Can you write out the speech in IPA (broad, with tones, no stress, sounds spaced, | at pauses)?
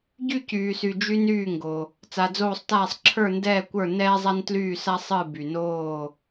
ɟ y˥˨ c yː˨ s y˨ d͡ʒ y˥ n yː˥˨ ŋ ɡ o˨ | t͡s a˨ d͡z oː˥˨ sˤ t aː˥˨ sˤ ǁʰ ə˞˥˨ n d ɛː˥˨ kʷ ə˞˥˨ n ɛː˥ zˤ a˥ n t l yː˥˨ s a˥ sˤ ɨ˥˨ b y˨ n oː˥˨